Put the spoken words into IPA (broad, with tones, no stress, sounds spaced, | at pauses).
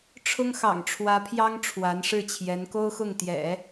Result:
ʈ͡ʂʰ ʊ˥ ŋ x ɑ̰˨˩ ŋ ʈ͡ʂʰ w ä˧˥ pʰ j ɑ˥ ŋ ʈ͡ʂʰ w a˧˥ n ʂ ɻ̩˥˩ t͡ɕʰ j ɛ˧˥ n k o˥ ʊ̯ x ʊ˥˩ ŋ t̪ j ɛ̰˨˩˦